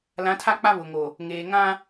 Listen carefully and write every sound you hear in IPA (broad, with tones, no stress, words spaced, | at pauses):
lã˨˦tʰa˦k͡pa˦ βʊ˨ŋo˨ | ŋeː˨ ŋã˦